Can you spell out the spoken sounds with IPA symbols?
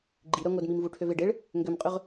ɡ͡ǃ i ɾ œ ŋʷ œ d m i m v u ʈʰ ø v e ɖ e ɭ | ŋ ɡ ø m qʼ ø ʁ

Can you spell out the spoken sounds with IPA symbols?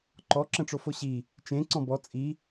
ǃ ɔ ǁ ə̃ ʈ͡ʂ o f o ɕ i | t͡ʃ ẽ ǀ ɔ̃ b ɔ t͡sʼ i

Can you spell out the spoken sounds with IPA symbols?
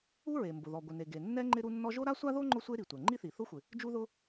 u˥ ɹ e˩ m b ʊ˩ ð ɔ˩ ɡʷ ɪ˩ n e˩ ɡ e˩ nː ɛ˥ ŋ͡ǃ ɪ˥ ɾ u˥ nː ɔ˥ ʒ o˥ ɾ a˥ sʷ a˥ ð o˥ ŋ͡ǃ ʊ˥ sʷ e˥ ɾ i˩ tʷ ɛ˩ ŋ͡ǃ i˥ θ i˩ θ ʊ˥ xʷ ɪ˩ | d͡ʒ u˥ ð ʊ˥

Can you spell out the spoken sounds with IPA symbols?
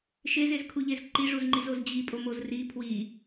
ʃ e z e z kʰ u ʎ e z ǃ i ʐ u z ŋ͡ǃ i z o z d͡ʑ i pʼ o m o z r i pʰ w i

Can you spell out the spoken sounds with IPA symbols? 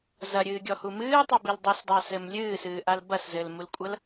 z ɐ ɾʲ ɨː ɡʲ ɔ h u m ɨː tˤ u b i l dˤ i s dˤ a s ɘ m lʲ ɨː s ɨː ʔ a l b ɐ s z ɘ l m u l kʷʼ ɐ l

